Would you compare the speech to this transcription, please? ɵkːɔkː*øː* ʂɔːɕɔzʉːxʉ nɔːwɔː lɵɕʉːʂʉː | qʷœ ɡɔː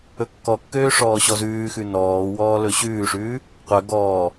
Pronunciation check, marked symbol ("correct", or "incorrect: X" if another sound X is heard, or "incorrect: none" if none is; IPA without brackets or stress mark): correct